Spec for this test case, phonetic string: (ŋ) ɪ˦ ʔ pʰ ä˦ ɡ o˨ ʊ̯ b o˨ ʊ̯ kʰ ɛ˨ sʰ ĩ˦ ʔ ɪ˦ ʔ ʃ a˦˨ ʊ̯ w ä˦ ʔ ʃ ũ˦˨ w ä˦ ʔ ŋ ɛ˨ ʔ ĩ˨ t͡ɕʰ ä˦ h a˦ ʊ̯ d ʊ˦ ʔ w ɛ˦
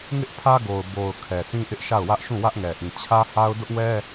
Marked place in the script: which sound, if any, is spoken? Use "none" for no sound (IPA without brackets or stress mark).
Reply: ŋ